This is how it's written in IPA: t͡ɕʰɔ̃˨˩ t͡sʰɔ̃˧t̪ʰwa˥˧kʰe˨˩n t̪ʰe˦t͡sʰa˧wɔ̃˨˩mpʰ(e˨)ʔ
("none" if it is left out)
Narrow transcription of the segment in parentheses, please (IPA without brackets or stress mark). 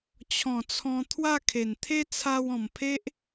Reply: e˦